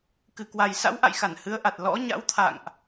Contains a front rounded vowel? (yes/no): no